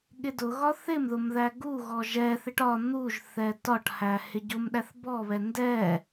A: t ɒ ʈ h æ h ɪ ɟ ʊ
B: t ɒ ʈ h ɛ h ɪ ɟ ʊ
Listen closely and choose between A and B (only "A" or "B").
A